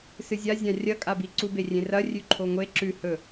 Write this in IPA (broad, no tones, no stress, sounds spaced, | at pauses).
s ɨ zʲ a zʲ ã rʲ ɐ kʼ a b i ǀ u b e rʲ ẽ r ɐ rʲ ʉ ǃʰ o ŋʷ e ǁ ʉ h ɵ